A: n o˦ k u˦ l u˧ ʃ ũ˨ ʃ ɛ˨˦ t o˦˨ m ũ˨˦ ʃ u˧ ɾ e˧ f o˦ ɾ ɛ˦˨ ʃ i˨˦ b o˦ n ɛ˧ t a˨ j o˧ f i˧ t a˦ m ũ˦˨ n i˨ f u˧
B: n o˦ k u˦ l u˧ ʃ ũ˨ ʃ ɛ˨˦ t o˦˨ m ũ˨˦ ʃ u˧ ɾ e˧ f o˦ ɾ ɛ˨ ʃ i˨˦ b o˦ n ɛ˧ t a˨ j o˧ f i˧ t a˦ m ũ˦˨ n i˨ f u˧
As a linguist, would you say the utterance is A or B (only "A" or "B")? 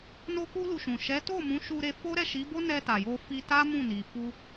A